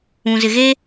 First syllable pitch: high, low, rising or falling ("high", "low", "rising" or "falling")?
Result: low